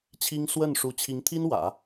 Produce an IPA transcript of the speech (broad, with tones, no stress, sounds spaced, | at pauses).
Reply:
t͡ɕʰ i˥ ŋ s w ə˥˩ n ʂ u˧˥ t͡ɕʰ i˧˥ ŋ t̪ʰ i˥ n w ä̰˨˩˦